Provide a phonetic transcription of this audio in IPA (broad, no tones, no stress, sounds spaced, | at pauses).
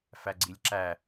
f æ ɡ͡ǀ i lʲ ǁ æ